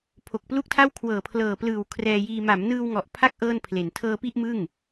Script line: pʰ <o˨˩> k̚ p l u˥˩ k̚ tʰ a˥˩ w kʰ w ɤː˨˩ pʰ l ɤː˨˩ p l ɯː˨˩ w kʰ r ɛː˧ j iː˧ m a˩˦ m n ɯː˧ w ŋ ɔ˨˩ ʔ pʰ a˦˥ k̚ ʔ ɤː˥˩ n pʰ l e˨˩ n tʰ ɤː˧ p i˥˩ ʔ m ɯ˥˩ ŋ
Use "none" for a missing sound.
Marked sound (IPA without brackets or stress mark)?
o˨˩